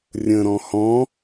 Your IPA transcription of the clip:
rʲ ə̃ ɾ ɔ̃ h ɔ̃

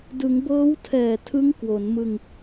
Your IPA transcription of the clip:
d ɯ˩˦ ŋ b ɤː˦˥ w tʰ ɛː˨˩ tʰ ɯ˦˥ ŋ k w o˩˦ n m ɯ˧ ŋ

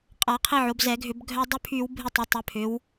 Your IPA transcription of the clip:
qʼ a˧˩˧ qʰ i˧ ʕ o˩˧ b z ɛ˧˩˧ ɡʱ ʏ˧˩˧ b ɡʱ œ˧ dˤ y˧ pʰ y˧˩˧ w bʱ ɪ˧ tˤ ʊ˩˧ tˤ ʏ˩˧ pʰ ʏ˩˧ w

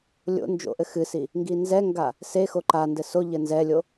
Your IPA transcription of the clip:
lʲ o̰ n d͡ʒ o̰ ʔ ɘ x ɨ s i | ŋ ɡ i n z ɛ ŋ ɡ a | s e x o ǃ a n d ɘ s o ʎ ɘ n z ɛ lʲ o

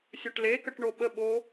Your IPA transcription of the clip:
sʲ ɵ ʈ l e k ə ʈ ɳ o ɓ ə ɓ o

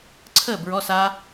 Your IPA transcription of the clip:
ǀʰ əː˥˩ b ɹ ɔ˧˥˧ s a˦˥

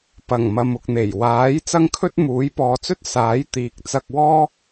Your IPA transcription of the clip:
p ɐ˨˩ ŋ m ɐ˨ m ʊ˨ k̚ n̪ e˨˩ j w aː˨˥ j t͡s ɐ˥ ŋ kʰ ɵ˥ t̚ m uː˨˥ j p ɔː˨˧ t͡s ɵ˥ t̚ s aː˨˥ j t̪ iː˨ k̚ t͡s ɐ˧ k̚ w ɔː˥

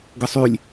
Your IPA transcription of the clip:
ɡ ə sˤ y lʲ

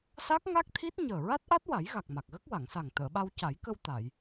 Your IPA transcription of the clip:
s a˦˥ k̚ ŋ a˦˥ k̚ t̪ʰ i˦˥ t̚ ɲ əː˨˩ ɹ a˦˥ t̚ ʔ a˦˥ t̚ w a˨˩˦ j ɣ a˨˩ k̚ m a˨˩ k̚ ɣ ə˦˥ k̚ w a˨˩˨ ŋ s a˨˩ ŋ t̪ əː˨˩˨ ɓ a˧ w c a˨˩˦ j k ə˧ w t̪ a˨˩˨ j

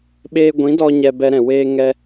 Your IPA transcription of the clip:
ɓ eː˦ ɡʷ ĩ˨˦ d ɔ˧ ɲ ɛ˧ b ɛ˧ ɾ ɛ̃˨ w eː˧ ŋ ɛ˧

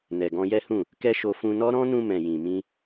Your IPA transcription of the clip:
n ɛ˨ ɡ ɔ̃˧ j ɛ˦ h ũ˦˨ | k ɛ˦ ʃ o˧ f ũ˧ n ɔ˦ ɾ ɔ̃˦ n ũ˧ m ɛ̃˨ j ĩ˨ m ĩ˧

